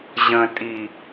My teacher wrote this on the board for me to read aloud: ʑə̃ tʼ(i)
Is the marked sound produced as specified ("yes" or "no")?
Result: yes